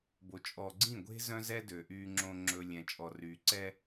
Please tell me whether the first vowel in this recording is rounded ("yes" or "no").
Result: yes